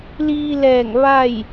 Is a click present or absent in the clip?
absent